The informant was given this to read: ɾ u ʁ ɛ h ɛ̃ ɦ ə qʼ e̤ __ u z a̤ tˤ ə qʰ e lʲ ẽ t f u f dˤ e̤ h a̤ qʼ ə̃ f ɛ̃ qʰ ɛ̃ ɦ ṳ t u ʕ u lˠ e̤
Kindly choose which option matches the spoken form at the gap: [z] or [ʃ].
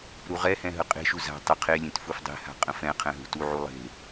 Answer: ʃ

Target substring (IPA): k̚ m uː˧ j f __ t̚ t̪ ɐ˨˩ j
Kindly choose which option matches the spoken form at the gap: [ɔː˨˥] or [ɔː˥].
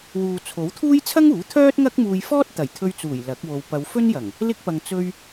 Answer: ɔː˥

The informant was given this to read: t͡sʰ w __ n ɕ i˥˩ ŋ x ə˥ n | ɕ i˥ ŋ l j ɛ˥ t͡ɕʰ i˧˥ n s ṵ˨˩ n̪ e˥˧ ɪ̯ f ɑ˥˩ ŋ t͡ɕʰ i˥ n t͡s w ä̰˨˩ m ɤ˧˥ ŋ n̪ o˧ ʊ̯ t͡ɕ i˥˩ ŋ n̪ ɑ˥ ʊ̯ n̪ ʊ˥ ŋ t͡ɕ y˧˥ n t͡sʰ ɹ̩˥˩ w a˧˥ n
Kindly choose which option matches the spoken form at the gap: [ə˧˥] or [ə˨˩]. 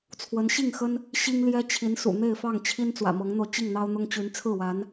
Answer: ə˧˥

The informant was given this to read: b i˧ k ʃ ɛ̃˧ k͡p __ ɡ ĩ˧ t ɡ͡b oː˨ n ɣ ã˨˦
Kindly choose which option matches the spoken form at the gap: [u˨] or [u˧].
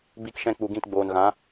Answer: u˨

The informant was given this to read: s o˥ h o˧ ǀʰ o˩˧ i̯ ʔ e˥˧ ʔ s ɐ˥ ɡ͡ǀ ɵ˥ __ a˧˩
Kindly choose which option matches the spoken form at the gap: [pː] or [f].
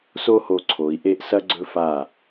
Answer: f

